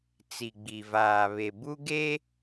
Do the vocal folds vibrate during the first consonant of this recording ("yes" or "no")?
no